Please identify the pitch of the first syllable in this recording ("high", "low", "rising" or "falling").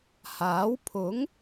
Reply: rising